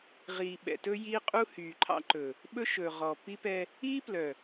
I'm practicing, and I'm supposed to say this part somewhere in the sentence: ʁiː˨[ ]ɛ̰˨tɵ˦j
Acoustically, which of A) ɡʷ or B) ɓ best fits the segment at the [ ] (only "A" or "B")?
B